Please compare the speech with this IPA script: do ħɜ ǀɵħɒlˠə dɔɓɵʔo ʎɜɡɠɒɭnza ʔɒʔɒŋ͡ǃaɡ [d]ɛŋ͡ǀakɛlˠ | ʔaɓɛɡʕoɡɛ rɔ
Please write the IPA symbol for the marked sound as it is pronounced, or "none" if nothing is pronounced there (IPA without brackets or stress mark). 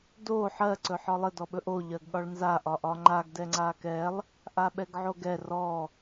d